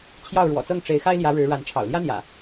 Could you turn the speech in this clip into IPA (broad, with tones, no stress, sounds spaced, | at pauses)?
t͡ɕʰ j ɑ˥˨ ʊ̯ ɻ w ɔ̰˨˩ t͡s ɤ˥˨ ŋ ʈ͡ʂ e˨˦ ɪ̯ x a˦ ɪ̯ l j ä˨˦ ɻ ɻ̩˨˦ ɻ a˨˦ n ʈ͡ʂʰ ɑ̰˨˩ ʊ̯ l j ä˦ n̪ j ä̰˨˩